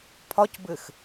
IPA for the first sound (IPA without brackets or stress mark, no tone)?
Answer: pʰ